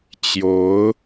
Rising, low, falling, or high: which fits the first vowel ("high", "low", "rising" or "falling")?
rising